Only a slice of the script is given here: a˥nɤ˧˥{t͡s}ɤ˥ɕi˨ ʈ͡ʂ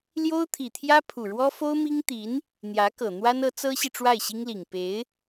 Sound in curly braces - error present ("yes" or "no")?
no